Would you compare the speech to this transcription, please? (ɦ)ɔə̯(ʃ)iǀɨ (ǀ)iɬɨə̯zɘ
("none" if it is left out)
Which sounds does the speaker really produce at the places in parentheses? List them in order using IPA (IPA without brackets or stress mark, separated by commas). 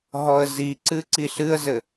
ɦ, z, ǀ